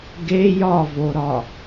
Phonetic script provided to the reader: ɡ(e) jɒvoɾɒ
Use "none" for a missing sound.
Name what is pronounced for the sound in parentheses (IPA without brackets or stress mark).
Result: e